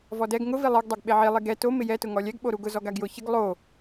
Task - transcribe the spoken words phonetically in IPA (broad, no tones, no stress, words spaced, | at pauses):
vɔdɛɡ ŋʊ vilˠeɡ dˤeɡɓeʕi lˠiɡɛ to mɪjɛ tʊŋɔlʲɛɡ ɓoɾuɡʊ zɔɡaɡjʊ çɪɡ lˠo